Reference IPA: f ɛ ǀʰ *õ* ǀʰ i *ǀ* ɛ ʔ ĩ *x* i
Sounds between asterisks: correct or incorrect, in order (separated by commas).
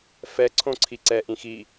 correct, correct, correct